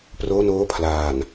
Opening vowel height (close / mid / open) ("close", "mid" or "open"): mid